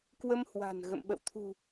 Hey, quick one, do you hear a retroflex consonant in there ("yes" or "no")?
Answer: no